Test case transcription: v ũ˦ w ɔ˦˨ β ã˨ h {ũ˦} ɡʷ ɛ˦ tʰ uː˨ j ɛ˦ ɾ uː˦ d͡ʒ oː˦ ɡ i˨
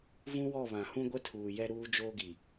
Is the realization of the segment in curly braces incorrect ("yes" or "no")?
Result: no